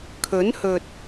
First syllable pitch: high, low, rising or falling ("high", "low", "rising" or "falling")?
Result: rising